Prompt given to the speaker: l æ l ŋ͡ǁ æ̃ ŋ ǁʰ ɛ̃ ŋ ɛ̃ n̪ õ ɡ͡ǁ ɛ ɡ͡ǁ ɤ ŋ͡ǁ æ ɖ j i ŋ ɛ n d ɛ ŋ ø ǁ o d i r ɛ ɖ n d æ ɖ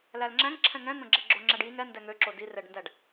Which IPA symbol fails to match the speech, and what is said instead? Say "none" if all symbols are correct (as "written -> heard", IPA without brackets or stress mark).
ɤ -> o